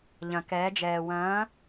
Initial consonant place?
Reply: palatal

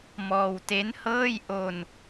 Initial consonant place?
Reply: labial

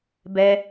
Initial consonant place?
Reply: labial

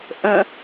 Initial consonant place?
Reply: glottal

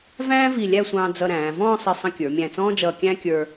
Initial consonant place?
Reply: labial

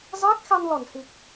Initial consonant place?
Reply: alveolar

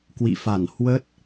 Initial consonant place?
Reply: velar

